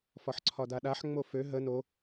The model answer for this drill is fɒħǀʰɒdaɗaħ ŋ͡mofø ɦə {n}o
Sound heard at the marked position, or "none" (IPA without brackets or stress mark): n